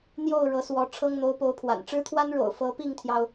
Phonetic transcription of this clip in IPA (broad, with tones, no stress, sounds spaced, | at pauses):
n̪ j o˥˩ ʊ̯ ɻ ɤ˧˥ s w ɔ˧˥ ʈ͡ʂʰ ɤ˥ ŋ n̪ o˧˥ ʊ̯ p o˧˥ ʊ̯ pʰ w a̰˨˩ n ʈ͡ʂ ɻ̩˥ t̪ʰ w a˥ n ɻ o̰˨˩ ʊ̯ f ɤ˧˥ p i˥˩ ŋ t̪ʰ j ɑ˩ ʊ̯